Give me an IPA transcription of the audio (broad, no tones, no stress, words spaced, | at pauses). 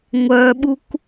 ŋʷœɓuk